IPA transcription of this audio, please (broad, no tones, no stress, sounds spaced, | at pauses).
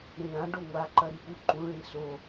ɾ ĩ ɭ ã ɖ o ŋʷ a ǃ ɐ ɾ i p u ǃ ũ ɭ ĩ s o